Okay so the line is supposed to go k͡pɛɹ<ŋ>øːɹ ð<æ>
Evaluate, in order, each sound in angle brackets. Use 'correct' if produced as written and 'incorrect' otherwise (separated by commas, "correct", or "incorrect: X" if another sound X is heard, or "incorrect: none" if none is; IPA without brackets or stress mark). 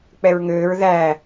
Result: correct, correct